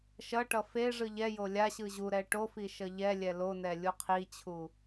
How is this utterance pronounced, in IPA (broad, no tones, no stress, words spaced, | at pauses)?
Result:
ʃʌʈʌ fe ʐɯʎɛjo lʲaɕɯ ʑuɾɛ ʈofi ʃʌʎɛlʲɛ lonɛ lʲuqʰit͡ɕʰu